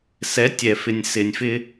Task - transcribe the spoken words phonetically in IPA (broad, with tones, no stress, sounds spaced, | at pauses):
s ɛ˨˦ tʲ ɛ˨ f ɪ˨ nʲ s ɪ˨ nʲ f ɪ˦